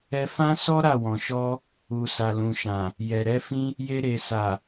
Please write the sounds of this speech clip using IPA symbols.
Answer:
ɛ˧ f ã˦ s ɔ˦ ɾ a˦˨ w ɔ̃˨ ʃ ɔ˧ | u˨ s a˨ l ũ˨ ʃ ã˨ | j ɛ˨ ɾ ɛ˨˦ f ĩ˦ | j e˧ ɾ e˨ s a˨

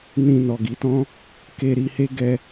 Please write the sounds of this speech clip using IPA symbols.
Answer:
n ĩ˧ n ɔ˨ ɡ i˨˦ t ɔ̃˦ | k e˧ ɾ i˧ h e˦ ɡ ɛ˦

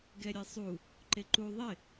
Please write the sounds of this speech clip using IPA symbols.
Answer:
ɡ ɛ ɾʲ e sˤ u | ǃ e ǃ u ðˤ ɪ

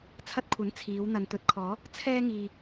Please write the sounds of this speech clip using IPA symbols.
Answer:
t͡sʰ ɐ˧ t̚ kʷʰ ɐ˨˥ n t͡sʰ iː˨˧ w n̪ ɐ˨ n t̪ ɵ˨˥ t̚ kʰ ɔː˨˧ | t͡sʰ ɛː˧ ŋ iː˨

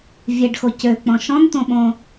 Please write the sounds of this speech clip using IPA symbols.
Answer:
vʲ ɛ ɖ x o c ø k͡p ɔ̃ ʃ ɔ̃ n t̪ õ ɓ õ

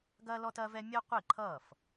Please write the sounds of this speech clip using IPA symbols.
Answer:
ɡ ɐː˥ l ɔ˥ t ɐː˥ v ɛ˥ mʲ əː˥ qʷ i˥˩ ǃʰ ʌː˥˩ f

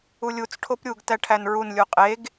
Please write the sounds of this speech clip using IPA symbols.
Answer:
u lʲ u t͡s ʈʰ o p ɾʲ u ɡ t æ ʈʰ æ n ɹ u n lʲ u qʼ e ɡ

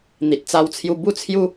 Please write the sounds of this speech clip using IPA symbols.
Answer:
n̪ i˨ t̚ t͡s a˧ w t͡sʰ j u˧ b u˥˧ t͡sʰ j u˦

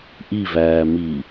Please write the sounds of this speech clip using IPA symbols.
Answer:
ʔ i v æː m iː

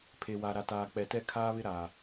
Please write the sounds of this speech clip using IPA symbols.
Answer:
pʰ e˨ w a˨ ɾ a˨ t aː˨ k͡p ɛ˨ t ɛ˦˨ kʰ aː˦ β ɪ˦ ɾ aː˨

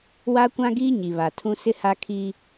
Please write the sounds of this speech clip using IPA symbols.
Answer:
w a˦ kʷ ã˦ ɡ iː˦ ɲ i˨ β a˨ tʰ ũ˦ s ɪ˦ h a˦ kʰ i˦

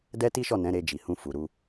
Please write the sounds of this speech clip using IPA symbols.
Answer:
d ɛ˦ t i˦ ʃ ɔ˦˨ n ɛ̃˨˦ ɾ e˧ d͡ʒ i˨ h ũ˧ f u˨ ɾ u˧

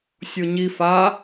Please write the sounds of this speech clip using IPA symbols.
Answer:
sʲ o ɲ i f a

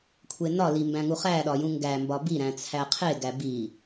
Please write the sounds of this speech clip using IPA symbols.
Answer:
kʷʰ e n ɒ l i m b æ̃ ŋ u χ æ ɗ ɒ j ũ ŋ ɡ æ m b ɒ b i ɾ æ̃ t͡sʰ æ qʰ e ɡ æ b i

